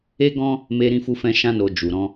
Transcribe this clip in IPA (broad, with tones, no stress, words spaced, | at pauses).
e˦ɡɔ̃˦ | me˧ɾĩ˧ fu˧fɛ̃˧ʃã˧no˨ d͡ʒu˨ɾɔ̃˧